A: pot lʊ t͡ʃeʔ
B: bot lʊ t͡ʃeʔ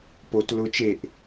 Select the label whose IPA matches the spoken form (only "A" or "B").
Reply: A